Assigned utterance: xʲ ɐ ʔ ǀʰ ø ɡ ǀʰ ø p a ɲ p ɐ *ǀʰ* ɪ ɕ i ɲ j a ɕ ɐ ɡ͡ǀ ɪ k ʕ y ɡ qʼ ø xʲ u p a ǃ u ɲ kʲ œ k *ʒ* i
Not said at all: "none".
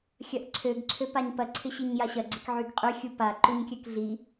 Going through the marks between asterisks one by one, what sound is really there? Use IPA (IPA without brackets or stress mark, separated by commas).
ǀʰ, ɮ